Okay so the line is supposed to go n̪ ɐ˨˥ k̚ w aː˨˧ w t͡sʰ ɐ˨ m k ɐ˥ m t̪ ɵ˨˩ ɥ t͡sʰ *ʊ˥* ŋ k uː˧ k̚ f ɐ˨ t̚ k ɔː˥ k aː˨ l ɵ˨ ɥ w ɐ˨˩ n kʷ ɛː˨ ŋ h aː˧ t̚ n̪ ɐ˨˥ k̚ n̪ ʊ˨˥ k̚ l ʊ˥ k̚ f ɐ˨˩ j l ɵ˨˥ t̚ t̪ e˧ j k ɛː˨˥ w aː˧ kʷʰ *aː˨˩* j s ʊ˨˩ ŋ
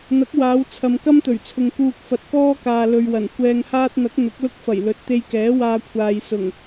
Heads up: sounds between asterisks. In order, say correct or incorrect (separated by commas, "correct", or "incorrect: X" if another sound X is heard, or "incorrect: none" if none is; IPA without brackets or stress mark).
incorrect: ʊ˨, incorrect: aː˨